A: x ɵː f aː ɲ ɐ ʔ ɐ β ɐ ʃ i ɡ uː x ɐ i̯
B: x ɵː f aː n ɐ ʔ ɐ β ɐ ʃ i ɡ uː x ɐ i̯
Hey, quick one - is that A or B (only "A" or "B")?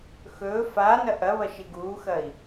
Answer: B